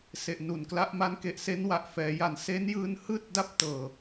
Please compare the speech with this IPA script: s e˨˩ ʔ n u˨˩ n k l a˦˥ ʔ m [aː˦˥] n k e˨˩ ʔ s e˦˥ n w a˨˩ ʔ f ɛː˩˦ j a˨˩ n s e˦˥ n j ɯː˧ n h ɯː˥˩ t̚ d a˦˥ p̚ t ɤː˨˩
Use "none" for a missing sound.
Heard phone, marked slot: a˦˥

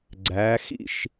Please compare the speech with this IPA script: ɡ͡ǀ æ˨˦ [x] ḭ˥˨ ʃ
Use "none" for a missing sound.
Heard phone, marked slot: x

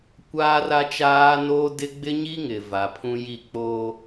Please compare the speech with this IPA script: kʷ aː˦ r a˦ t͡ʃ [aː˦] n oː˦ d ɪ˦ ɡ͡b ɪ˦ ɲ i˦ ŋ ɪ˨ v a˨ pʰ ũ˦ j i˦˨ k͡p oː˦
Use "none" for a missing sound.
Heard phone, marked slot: aː˦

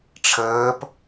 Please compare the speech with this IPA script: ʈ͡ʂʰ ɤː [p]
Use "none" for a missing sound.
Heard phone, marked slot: p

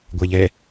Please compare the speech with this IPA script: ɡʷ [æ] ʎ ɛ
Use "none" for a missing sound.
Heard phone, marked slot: æ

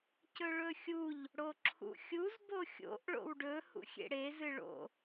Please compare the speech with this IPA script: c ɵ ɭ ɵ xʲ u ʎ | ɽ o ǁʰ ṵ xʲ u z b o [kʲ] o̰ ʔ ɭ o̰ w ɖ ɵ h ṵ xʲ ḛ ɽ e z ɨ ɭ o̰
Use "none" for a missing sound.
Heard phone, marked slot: xʲ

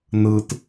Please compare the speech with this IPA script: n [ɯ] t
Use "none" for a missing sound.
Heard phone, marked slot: ɯ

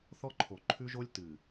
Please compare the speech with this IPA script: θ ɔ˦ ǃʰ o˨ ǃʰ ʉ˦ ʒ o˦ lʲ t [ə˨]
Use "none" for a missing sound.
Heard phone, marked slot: ɨ˨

